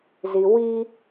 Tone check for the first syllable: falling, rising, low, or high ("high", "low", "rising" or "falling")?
low